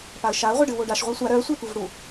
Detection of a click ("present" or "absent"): absent